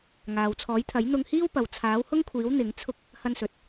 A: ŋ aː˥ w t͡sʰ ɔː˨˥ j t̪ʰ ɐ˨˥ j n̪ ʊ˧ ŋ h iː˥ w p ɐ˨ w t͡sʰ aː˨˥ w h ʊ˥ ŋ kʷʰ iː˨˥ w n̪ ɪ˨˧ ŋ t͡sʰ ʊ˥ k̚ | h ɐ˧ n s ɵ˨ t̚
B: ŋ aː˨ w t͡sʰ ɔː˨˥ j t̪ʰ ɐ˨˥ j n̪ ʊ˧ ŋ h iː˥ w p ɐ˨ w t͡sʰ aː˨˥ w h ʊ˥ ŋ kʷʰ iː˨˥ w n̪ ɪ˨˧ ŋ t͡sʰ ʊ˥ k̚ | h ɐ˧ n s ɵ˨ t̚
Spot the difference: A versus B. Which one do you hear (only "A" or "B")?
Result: B